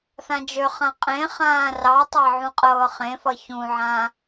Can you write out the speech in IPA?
θ ã d͡ʒ ø χ ã qʼ ẽ χ ãː r ɑ tˤ ɑ ʕ ũ qʼ ɤː χ ẽ f ʌ ç ũ ʕ ã

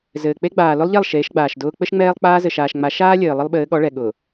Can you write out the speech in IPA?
z ɘː˨ k͡p e˦ ɡ͡b aː˨ l ʊ˦ lˠ ʎ ɛ˦˨ lˠ ʃ eː˨˦ ʃ ɡ͡b aː˨ ʃ d ʊː˦ k͡p ɘ˦ ʃ ŋ͡m ɛː˦ lˠ k͡p aː˦ z ɘ˨ ʃ aː˨ ʃ ŋ͡m a˨˦ ʃ aː˦ lʲ ɘː˨ lˠ ə˦ lˠ ɓ ɘː˨˦ ɠ ɔ˨˦ ɭ ɛ˨ ɠ ʊː˨

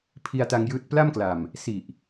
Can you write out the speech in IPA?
pʰ i˧ a̯ t a˧ ŋ j ɯː˦˥ t̚ p l a˥˩ m k l a˨˩ m | s i˨˩ ʔ

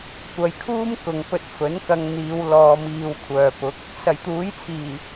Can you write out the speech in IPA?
kʷ ɐ˨ j kʰ uː˥ m k ʊ˨ ŋ p ɵ˧ t̚ f ɵ˨˥ n k ɐ˧ ŋ n̪ iː˨˧ w l ɔː˧ m iː˧ w kʷʰ œː˨ p ʊ˨˥ k̚ | s ɐ˨˩ j t̪ uː˨˥ j t͡sʰ iː˨˩

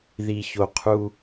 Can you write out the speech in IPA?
ð i˨ ç o˨ qʰ u˦

